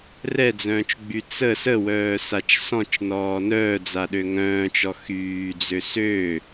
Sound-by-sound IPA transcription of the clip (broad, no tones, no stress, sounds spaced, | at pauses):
r ɛ d͡z œ̃ː t͡ʃ ɡ͡b y t͡s ə s ə w œː s a t͡ʃ s ɔ̃ t͡ʃ n ɔː n œː d͡z a ɗ ø ŋ œ̃ː t͡ʃ ɔ x yː d͡z ø s ø